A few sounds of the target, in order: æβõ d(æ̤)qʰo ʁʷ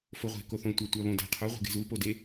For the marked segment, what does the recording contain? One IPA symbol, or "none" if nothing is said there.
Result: æ̤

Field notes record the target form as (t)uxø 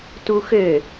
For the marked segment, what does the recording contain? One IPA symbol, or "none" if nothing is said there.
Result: t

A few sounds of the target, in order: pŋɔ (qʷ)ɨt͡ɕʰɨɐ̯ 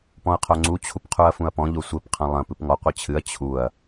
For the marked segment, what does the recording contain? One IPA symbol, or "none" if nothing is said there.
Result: qʷ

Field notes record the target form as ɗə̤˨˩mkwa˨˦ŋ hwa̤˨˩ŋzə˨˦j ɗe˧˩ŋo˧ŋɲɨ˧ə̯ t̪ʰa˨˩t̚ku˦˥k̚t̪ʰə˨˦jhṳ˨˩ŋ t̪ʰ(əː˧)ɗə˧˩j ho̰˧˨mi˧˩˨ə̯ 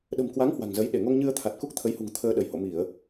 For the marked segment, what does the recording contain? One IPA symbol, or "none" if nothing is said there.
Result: əː˧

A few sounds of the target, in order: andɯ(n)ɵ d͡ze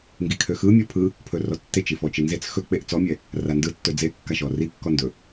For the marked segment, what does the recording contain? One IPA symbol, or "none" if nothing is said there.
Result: tː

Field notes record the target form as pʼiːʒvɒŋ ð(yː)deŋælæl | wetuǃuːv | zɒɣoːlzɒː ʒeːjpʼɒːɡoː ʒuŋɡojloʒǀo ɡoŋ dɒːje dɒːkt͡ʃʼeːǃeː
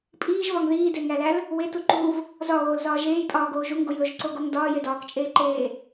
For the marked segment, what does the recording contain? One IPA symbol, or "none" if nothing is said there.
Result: iː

